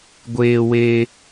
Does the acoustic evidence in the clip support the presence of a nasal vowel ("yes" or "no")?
no